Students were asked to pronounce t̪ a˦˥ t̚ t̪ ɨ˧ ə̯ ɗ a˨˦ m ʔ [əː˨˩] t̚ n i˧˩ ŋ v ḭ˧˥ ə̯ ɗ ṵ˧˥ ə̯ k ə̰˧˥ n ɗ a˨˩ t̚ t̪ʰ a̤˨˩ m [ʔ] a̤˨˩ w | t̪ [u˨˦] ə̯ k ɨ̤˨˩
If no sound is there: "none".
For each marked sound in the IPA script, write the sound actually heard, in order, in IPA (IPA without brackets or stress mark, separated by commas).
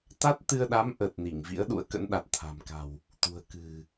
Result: əː˨˩, k, ṳ˨˩